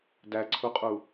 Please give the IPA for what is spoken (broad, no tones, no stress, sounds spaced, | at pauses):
d æ ǀʰ u qʼ u